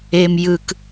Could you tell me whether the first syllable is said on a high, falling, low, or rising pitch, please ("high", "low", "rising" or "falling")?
low